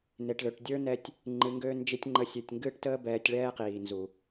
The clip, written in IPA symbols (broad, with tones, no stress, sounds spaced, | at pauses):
n e˨ ʈ l ø˨ ʈ dʲ ə˞˦ n ɛ˧ tʲ | ŋ͡ǃ ɨ˨˦ ŋ ɡ ø˦ n d͡ʒ i˦ tʲ ŋ͡ǃ ə˨˦ sʲ ø˨ tʲ ŋ ɡ ɨː˦ ʈ t əː˦ b ɛː˧ tʲ ɭ ɛː˦ q iː˨ n z u˨